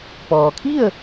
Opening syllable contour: low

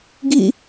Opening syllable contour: falling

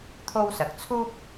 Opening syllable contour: high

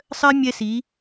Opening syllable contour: high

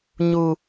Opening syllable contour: high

